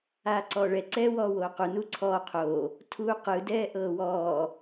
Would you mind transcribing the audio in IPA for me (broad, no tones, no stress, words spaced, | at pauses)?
aːǀɔːɭɛ ǀɛːwɔːwoːqu nuǀʰɔː qʰo | tʰuːqɯ dɛːʔɤːwɔː